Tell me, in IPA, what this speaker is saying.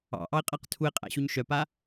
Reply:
ɑ̰ʔɑe̯qʼæq tʰue̯qʼæ̰ɕuɲ ʃœpa

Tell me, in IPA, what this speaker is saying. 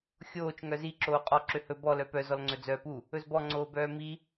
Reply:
xʲoːt͡ʃ ŋœzi ǁoːqʼɔ ǁøhɵ bɔ lœpœ zɔlŋ͡ǀɵd͡zœːpu | ɵzbɔ ŋ͡ǀoːbœːmi

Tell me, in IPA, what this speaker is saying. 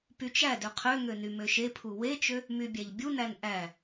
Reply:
pyt͡ʃædø qʰøŋø nymøʃepʰu wet͡ʃø | mybʲæʎbʲunæn ʔæ

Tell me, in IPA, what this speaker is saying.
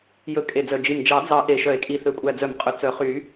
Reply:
jɵ˨˩˦ kʼe˨˩d͡zœ˨˩ d͡ʒi˨˩m d͡ʒɑ˨˩˦d͡zɑ˨˩˦ ʔe˨˩ʃœ˨˩˦e̯kʼi˨˩ θø˨˩kʷʼæ˨˩d͡zœ˨˩˦mqʼɵ˨˩ t͡sœ˨˩˦χy˨˩˦

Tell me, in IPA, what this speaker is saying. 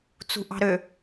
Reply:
t͡sṳʔɑ̤ɾø

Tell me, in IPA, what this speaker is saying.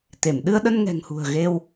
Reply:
t̪e˧˩m ɗɨ˧ə̯ɗə˧n ŋɛ̤˨˩ŋhṳ˨˩ə̯ ɣe˧w

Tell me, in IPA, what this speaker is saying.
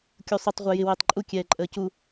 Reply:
kʲusˤutˤ ʁʷə˞jɪ wɪːtˤǃʼu kʲɛːǃʼəːcu

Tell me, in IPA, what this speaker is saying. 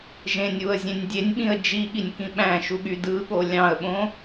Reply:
ʒẽnʲuə̯zʲẽnʲ dʲenʲɓĩə̯ d͡ʒiɠinʲkĩ ɓæ̃ʃuɠy dɯɠo lʲɑ̃ə̯ɓõ

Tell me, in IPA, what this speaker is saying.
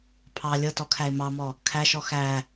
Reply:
pʰɑ lʲɤtɔkʰæɪ̯ mɑmɔ | kʰæʃɔ xæ

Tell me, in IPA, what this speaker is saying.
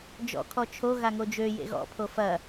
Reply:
d͡ʒɔ̰ kʰɔt͡ʃʰo ɣaŋod͡ʒø jḛɣɔ̰ pʰofɐ

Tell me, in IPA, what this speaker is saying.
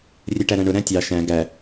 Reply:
rʲɛʈæɾæ̃ɳʊ ɾæ̃tʲɑ ʃæ̃ ɡæ

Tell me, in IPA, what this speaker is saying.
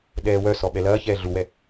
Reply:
ɗɛːwœsɔ ɓɛlɐːçɛː ɮuwɛ

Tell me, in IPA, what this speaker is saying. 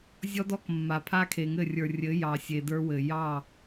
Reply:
zʲɔ˦dɔ˦kmːa˨ pʰa˦kʰe˨ŋɘ˦˨rʲə˞˨ rʲɘ˨˦ jɑ˨sʲe˨də˞˧wɘ˨ jɑ˦˨

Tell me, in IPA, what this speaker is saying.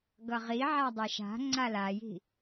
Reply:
ɡʌʁi ʕadˤɛʃa̤ ŋ͡ǀalaji̤

